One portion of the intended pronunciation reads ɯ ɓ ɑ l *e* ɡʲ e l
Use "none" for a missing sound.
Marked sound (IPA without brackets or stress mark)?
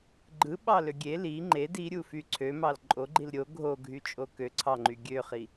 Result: ø